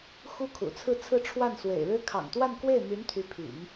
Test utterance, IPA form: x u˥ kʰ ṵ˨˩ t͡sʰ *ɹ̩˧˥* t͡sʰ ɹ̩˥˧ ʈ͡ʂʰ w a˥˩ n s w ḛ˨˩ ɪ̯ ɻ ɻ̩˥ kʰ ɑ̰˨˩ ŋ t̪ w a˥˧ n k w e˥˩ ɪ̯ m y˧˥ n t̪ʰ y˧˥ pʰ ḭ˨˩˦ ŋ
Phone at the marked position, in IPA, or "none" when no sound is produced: ɹ̩˥˧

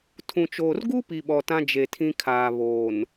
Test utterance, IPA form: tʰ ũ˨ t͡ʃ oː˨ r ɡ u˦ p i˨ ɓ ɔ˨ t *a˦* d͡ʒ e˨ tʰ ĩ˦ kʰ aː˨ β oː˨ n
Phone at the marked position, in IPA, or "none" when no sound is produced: ã˦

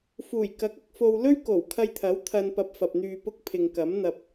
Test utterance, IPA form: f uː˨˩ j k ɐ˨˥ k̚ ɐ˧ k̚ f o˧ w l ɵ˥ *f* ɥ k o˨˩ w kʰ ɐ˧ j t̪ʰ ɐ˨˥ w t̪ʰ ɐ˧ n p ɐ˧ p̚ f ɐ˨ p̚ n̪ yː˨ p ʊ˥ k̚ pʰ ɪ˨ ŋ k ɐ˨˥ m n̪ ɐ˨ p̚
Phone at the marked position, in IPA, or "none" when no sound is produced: none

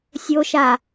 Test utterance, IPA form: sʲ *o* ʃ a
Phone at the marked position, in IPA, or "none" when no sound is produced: o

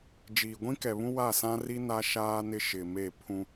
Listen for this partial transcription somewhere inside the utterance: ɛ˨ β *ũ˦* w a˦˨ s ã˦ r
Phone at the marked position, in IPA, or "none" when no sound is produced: ũ˦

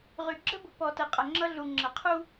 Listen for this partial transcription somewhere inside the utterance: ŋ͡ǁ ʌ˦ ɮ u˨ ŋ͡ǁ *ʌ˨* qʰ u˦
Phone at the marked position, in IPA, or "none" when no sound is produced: ʌ˨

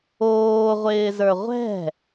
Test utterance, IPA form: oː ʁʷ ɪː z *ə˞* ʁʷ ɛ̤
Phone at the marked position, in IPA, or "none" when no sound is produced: ə˞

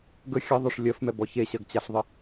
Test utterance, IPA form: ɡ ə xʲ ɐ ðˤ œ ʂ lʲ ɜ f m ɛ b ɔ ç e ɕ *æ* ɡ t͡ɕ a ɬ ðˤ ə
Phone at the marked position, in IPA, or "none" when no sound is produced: ɜ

